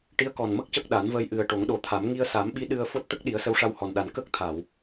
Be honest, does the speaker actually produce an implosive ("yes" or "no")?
yes